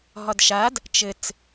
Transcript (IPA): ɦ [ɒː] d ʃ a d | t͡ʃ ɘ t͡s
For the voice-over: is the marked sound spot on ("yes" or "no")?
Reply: no